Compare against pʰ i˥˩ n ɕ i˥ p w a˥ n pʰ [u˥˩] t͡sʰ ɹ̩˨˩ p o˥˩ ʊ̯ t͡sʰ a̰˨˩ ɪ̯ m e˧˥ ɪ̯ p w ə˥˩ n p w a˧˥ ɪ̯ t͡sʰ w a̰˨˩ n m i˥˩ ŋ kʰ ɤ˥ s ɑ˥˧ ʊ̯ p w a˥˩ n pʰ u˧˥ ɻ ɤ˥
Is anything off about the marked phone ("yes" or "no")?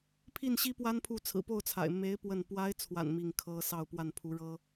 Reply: no